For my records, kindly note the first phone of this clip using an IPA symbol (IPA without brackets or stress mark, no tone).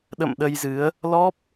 ɗ